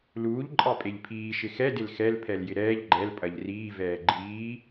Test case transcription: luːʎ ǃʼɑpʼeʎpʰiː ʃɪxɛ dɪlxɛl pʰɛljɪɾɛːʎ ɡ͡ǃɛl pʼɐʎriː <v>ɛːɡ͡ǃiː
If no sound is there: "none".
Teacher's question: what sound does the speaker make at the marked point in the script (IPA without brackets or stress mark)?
v